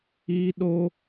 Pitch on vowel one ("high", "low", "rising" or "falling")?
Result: high